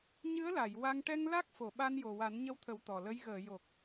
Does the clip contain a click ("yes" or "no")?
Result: no